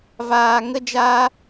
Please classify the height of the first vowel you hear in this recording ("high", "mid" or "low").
low